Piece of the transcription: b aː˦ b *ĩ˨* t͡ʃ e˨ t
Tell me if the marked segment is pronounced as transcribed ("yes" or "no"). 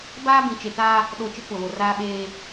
yes